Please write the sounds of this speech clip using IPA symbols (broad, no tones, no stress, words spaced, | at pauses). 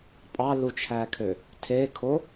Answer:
pʼɑlut͡ʃʰækʰø | tʰekʰo